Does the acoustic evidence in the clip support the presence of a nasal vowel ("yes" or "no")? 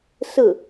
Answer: no